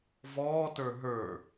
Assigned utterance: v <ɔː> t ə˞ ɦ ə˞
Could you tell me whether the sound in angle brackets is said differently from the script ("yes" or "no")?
no